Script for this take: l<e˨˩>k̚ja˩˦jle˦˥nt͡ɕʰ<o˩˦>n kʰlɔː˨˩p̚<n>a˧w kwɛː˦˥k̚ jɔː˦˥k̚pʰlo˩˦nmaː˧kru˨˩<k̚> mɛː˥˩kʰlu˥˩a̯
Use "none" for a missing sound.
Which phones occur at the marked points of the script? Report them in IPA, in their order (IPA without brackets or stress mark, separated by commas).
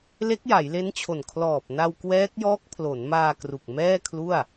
e˦˥, o˨˩, n, k̚